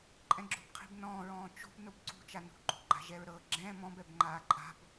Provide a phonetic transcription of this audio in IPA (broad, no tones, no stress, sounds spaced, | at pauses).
ǃʼ ɛ̃ ɡ͡ǁ o̤ b qʰ i̤ b n ɔ̃ː ɹ ɔ̃ː t͡ʃ o̤ b n o b ǀ ṳ t͡ʃ a n ṳ ɡ͡ǃ o̤ ɡ͡ǃ a̤ ʒ ɛ ɹ ɾ ɤ ɡ͡ǁ ɛ̃ː m ɔ̃ b ɛ b ŋ͡ǃ aː ǃʼ a̤ b